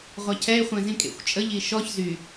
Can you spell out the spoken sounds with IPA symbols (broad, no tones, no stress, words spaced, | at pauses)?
ʁʷacʰɛe̯χʷɛ̃ zĩkʼḛxʷt͡ʃʼəʎ iʃɔç zy